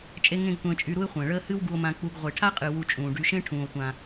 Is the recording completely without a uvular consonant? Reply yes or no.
no